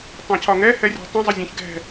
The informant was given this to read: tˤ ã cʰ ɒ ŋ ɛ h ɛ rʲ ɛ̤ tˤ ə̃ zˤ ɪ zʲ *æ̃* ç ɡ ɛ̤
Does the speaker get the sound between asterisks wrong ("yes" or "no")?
yes